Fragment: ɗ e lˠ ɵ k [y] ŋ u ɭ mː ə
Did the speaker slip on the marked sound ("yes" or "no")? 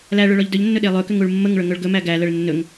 yes